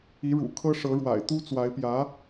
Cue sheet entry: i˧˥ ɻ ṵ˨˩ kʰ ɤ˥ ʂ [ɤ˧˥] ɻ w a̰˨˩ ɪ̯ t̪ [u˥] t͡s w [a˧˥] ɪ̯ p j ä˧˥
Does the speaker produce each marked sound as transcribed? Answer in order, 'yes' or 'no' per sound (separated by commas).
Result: yes, yes, yes